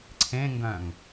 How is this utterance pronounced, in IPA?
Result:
ǀʰ ẽ ŋ ɡ œ̃ ŋ

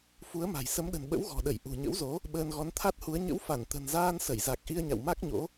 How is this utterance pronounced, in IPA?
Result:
f u˨˦ ə̯ m a̤˨˩ j s ə˨˦ m ɗ ə̤˨˩ n ɓ ə̰˧˥ w ɣ ɔ̤˨˩ ɗ ə˧˩ j ʔ ṳ˨˩ ɲ ə̰˧˥ w z o˨˦ | ɓ əː˧ n ɣ ɔ˨˦ n t̪ʰ a˦˥ t̚ h u˨˦ ə̯ ɲ ə̰˧˥ w f a˧˩ n t̪ ə̤˨˩ n z aː˧ n s ə˧˩ j z a˨˩ k̚ ʔ i˧ ə̯ ɲ a̰˧˨ w m a˦˥ k̚ ɲ o̰˧˥

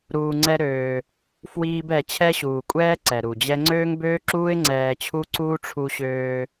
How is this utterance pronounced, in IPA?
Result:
ɾ uː˧ ŋ͡ǀ ɛ˦ ɾ øː˧ | f w iː˦ b ɛ˧ t͡ɕʰ ɛ˦ ɕ uː˨ kʷʼ ɛː˦ ǀ ɛ˨ ɾ u˨ d͡ʑ ɛ˦ ŋ͡ǀ øː˦ ŋ b øː˦ ǁ uː˦ ɪ̯ ŋ͡ǀ ɛː˧ t͡ɕʰ u˦ ǀ uː˦ ʈ͡ʂʰ u˧ ɕ øː˧

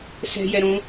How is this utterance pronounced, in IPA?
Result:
s ɛ̤ j ɛ ɾ ũ

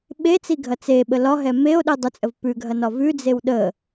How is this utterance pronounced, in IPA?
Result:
ɓ e t͡s i ɡʱ ɐ t͡s e ɓ ə l ɒ ɦ ɛ m e o̯ ɗ i dˤ ə t͡sʼ ə v p ʉ ɡʱ ɐ n ɒ v ʉ d͡z e w ɗ ə

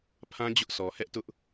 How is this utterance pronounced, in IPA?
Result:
pʰ ã˦ d͡ʑ ʊ˦ ʔ sʰ ɔ˨ h ɛ˦ ʔ t ʊ˦ ʔ

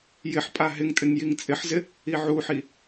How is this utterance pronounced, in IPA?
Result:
j ɪ ħ pʼ a ɦ ɪ ŋ tʼ ɪ ŋ j i ŋ t͡sʼ ɪ ħ z ɪ | i ʕ u ħ i

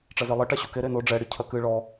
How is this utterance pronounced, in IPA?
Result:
ʈ͡ʂ ɐ z e lˠ ɘ ʈ a ɕ u k e ɾ e n o ɖ͡ʐ ɛ ɽ i cʰ ɐ k ɨ ɭ ɔ

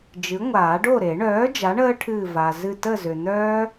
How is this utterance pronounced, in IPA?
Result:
d͡ʒ ɨ˩˥ ŋʷ aː˨˩˦ ɖ o˥˨ ɾ e˨˩˦ ɳ œː˩˥ d͡ʒ a˩˥ ɳ əː˦˥ ʈʰ ɨː˧˩ v a˩ z ɨ˧˩ t ə˥˨ z ʏ˩ n̪ œː˦˥

